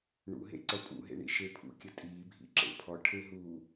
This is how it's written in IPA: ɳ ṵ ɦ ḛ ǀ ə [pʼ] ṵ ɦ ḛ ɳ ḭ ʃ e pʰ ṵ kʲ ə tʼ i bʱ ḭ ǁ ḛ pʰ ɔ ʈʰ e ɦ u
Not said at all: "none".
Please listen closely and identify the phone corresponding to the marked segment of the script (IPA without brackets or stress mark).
pʼ